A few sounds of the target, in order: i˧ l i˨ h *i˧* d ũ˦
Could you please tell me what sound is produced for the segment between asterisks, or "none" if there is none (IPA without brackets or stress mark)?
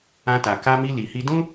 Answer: i˧